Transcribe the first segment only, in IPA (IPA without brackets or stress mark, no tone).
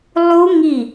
lˠ